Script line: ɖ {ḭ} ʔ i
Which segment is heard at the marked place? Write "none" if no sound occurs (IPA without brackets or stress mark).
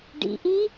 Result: ḭ